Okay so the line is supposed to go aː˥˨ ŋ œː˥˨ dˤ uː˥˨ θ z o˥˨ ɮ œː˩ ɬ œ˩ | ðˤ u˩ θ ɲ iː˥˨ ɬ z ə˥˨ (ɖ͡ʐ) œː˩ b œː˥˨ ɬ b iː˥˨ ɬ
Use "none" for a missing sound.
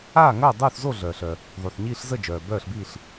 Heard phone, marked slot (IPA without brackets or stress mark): d͡ʒ